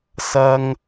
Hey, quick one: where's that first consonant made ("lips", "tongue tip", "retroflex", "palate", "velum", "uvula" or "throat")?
tongue tip